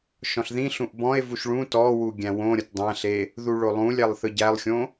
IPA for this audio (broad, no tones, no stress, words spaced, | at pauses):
ʃɔ̃ɬðĩɬũʔ bɔ̃e̯vuʃ ɭũ tɔwu ɡʲæ̃wõɾʲʌt dˤæ̃ɬe | ðuɭolˠũlʲælˠ θɯɟælˠxʲõ